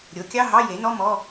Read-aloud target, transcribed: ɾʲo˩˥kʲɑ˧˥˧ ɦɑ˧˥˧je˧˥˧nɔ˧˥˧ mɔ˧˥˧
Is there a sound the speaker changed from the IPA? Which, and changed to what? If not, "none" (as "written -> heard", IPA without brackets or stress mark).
e˧˥˧ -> e˩˥